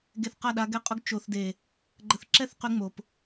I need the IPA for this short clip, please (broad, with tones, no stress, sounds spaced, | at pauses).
ɡ e˧ θ q a˦˨ ɗ a˧ ɡ ɛ˧ qʼ ʊ˧ ɡ t͡ʃ o˨ θ d e˨ | ɡ͡ǃ ə˧ θ ǁ ɛ˦ θ q y˧ ŋ͡m o˨ p